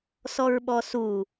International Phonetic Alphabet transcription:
s ɔ ɹ ɓ ɔ s u

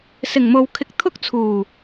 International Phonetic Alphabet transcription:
s ɪ˨˩ ŋ m o˨ w kʰ ɪ˧ k̚ t̪ʰ ʊ˥ k̚ t͡sʰ uː˨˩

